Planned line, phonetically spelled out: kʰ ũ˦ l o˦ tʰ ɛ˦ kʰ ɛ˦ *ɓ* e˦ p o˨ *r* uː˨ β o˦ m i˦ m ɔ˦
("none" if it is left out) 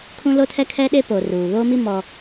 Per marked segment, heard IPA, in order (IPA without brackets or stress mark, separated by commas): ɗ, r